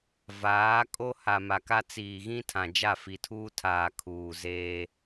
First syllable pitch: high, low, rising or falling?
rising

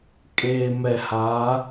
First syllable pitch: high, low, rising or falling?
low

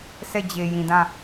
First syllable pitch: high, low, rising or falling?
falling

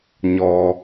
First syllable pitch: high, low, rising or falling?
low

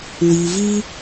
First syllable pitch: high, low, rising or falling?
low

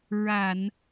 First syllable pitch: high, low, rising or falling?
low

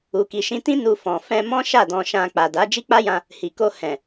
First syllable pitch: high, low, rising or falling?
low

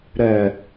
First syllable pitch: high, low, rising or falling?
low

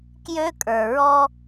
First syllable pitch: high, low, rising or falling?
high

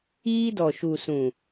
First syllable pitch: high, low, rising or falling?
high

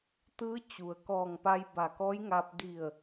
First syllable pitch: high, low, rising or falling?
rising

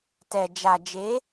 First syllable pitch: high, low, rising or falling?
low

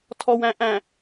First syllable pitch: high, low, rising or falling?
low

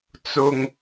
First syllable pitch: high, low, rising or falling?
low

